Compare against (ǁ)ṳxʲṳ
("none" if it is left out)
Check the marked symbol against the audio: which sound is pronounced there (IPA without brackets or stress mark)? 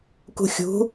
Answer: k